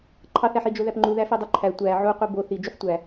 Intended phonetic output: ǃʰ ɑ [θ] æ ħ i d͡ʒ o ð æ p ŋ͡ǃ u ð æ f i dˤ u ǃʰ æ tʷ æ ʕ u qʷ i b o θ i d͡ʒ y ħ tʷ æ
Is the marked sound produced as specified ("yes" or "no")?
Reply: yes